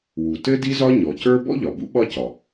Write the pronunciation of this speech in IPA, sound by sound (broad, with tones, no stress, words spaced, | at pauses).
wu˩tɘ˥ di˥zɒ˥ ɲɔ˩cə˞˥ bɔ̰˥ʎɒ˩bṵ˥ ɓɒ˥cɒ˩